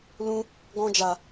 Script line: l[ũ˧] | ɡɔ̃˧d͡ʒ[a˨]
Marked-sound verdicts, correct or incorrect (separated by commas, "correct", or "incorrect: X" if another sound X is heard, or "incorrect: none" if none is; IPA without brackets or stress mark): correct, correct